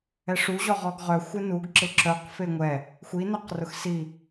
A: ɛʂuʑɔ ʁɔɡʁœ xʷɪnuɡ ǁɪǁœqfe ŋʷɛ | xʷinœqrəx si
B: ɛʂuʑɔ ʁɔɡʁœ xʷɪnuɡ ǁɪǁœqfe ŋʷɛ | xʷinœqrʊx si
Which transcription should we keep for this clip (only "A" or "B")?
B